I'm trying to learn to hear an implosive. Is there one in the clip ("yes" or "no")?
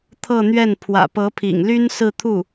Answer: no